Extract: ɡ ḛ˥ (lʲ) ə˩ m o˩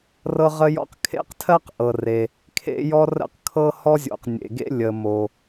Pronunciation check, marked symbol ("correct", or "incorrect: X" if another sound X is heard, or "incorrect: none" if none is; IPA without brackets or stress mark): correct